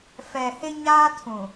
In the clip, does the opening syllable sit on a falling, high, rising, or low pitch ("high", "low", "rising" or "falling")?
low